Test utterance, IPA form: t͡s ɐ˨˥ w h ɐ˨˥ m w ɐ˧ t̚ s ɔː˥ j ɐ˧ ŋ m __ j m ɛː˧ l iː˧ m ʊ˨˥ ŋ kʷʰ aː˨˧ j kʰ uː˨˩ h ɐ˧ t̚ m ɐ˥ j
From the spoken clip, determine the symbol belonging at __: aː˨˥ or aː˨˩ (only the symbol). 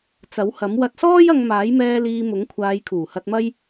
aː˨˥